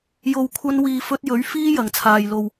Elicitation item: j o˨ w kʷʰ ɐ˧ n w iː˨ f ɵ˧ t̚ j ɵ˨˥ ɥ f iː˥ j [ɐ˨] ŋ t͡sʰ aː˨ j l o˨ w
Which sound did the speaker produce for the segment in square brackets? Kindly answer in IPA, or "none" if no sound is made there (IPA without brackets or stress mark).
ɐ˨